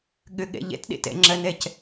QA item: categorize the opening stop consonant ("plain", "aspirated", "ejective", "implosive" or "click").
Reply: implosive